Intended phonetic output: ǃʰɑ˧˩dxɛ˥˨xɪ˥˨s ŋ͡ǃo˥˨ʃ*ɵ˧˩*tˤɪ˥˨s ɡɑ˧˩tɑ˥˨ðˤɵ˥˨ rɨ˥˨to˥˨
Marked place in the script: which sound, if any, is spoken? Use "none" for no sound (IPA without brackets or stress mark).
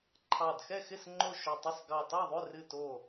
ɵ˧˩